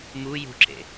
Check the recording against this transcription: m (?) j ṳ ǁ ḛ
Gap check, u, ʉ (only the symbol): u